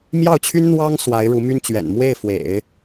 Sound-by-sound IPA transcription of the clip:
m j ɑ˥˩ ʊ̯ t͡ɕʰ y˥ n n̪ w ɑ˥ ŋ s w a˧˥ ɪ̯ ɻ u˧˥ m y˥ n t͡ɕ ɥ ɛ̰˨˩ n m w e˥˩ ɪ̯ f w ḛ˨˩˦ ɪ̯

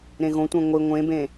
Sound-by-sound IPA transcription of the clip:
ɾ ẽ ɣ õ tʷ ɛ̃ ŋʷ i ŋʷ ẽ b ẽ

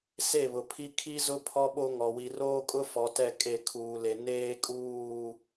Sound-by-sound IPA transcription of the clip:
s e˦˨ β ʊ˨ pʰ i˦ kʰ i˦ z ʊ˦ pʰ ɔ˦ ɓ o˦ ŋ ɔ˨ w i˨ r oː˦ kʼ ʊ˦ f ɔ˨ t ɛ˦˨ kʼ e˦˨ kʰ uː˨ l e˨ n eː˦ kʼ uː˦˨

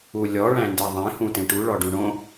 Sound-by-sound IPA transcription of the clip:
u lʲ ɔ ɭ æ̃ n d e ðˤ ẽ h ũ t ẽ ʈ u ɭ ɔ ɖ ũ ɳ õ

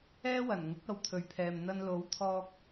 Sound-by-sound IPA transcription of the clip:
ɛː˥ w ɐ˨˩ n ŋ ʊ˨˥ k̚ ɐ˧ w t̪ʰ ɵ˨ ɥ pʰ ɛː˨ m n̪ ɐ˧ n l o˨˥ w t̪ʰ ɔː˧ k̚

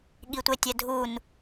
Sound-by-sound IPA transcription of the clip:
ɠ i tʷ e tʲ ɛ dʱ u n

